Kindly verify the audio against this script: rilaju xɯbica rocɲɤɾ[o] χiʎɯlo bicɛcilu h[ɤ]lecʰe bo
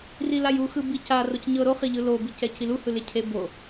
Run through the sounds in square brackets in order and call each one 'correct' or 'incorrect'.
correct, incorrect: ɯ

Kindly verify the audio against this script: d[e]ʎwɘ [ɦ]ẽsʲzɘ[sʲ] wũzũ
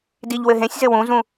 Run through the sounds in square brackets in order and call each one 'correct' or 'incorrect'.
incorrect: i, correct, incorrect: none

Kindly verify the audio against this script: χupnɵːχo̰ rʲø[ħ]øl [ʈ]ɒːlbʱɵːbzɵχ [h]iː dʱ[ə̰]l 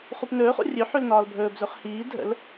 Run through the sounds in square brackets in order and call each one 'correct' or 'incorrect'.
correct, incorrect: n, correct, correct

